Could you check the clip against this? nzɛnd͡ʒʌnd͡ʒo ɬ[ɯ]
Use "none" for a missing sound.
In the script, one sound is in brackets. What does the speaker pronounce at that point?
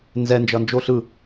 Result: ɯ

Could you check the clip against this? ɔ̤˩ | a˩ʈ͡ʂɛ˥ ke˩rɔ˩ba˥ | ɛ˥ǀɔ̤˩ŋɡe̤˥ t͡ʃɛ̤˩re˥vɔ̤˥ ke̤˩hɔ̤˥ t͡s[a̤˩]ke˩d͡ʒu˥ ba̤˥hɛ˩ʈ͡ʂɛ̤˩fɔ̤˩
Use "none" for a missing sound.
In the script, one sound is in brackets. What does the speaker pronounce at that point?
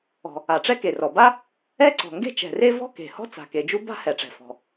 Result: a̤˩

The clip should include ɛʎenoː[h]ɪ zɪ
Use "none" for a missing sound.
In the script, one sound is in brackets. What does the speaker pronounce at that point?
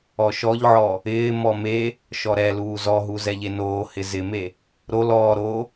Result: h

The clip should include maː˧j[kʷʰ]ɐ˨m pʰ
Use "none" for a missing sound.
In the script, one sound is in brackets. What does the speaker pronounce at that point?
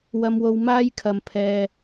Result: kʰ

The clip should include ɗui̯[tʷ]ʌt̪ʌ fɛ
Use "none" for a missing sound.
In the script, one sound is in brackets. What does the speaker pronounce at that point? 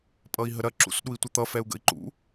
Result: tʷ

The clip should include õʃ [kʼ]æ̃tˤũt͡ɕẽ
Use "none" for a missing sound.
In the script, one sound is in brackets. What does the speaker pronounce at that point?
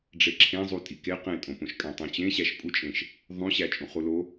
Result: kʼ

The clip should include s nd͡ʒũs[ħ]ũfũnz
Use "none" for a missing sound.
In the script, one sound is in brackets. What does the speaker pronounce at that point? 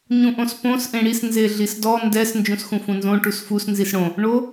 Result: x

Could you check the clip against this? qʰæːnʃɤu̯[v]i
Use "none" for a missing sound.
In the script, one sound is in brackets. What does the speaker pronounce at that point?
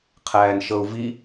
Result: v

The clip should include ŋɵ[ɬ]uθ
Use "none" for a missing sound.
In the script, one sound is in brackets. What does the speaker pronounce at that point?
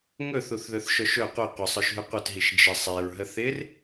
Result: θ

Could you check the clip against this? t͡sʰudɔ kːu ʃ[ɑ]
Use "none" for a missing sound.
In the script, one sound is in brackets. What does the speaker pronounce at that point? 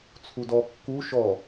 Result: ɔ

